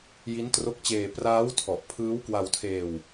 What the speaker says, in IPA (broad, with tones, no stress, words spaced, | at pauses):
ji˦˥ntro˦˥k̚t͡ɕeː˧ praː˦˥wtʰɔ˨˩ʔ pʰɯː˦˥w kwa˧wtʰeː˧w